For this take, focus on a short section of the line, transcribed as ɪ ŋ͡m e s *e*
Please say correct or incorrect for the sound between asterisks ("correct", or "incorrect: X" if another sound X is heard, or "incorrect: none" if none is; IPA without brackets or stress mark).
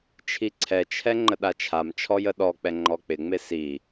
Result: incorrect: i